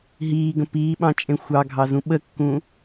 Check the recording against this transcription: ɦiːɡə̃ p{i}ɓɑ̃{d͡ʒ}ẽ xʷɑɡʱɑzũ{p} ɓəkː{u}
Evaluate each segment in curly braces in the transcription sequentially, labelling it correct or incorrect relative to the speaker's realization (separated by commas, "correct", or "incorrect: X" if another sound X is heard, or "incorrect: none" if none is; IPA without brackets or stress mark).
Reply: incorrect: iː, incorrect: t͡ʃʼ, incorrect: none, incorrect: ũ